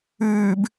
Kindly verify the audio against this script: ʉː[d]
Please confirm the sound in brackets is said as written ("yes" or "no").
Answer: no